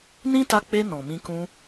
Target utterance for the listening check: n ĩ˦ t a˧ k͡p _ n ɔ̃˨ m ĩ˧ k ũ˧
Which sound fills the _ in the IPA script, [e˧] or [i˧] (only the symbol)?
e˧